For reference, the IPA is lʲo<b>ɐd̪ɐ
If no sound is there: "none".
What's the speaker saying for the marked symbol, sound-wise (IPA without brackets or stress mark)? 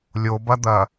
b